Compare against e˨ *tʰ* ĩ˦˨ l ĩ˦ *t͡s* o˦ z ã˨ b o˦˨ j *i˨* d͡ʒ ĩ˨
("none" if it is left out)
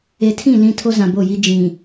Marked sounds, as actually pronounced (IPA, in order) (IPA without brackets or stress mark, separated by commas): tʰ, tʰ, i˦